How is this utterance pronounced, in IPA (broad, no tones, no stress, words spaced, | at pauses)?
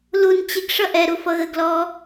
lun t͡ɕɪɡ ʂʌʔɛɾu fʌɣəɡlɔː